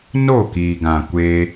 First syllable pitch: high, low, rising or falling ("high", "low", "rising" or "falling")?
falling